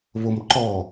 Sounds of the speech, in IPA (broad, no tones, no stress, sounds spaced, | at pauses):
β o m ǃ ɔ